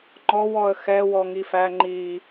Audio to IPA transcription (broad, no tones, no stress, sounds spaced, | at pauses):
ŋ͡ǃ ɔ w ɔ ə̯ x ɛ w ɔ ŋ i f æ ŋ͡ǃ i